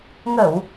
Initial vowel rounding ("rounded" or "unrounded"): unrounded